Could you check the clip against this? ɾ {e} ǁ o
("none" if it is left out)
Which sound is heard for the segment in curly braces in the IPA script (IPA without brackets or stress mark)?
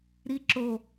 i